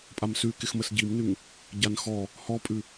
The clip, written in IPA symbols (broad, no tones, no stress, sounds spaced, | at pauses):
pʼ a m s ʉ k ɪ x m ə s ɟ i m n ʉ ŋ | ɟ a n x ɔ | h ɔ pʼ ʉ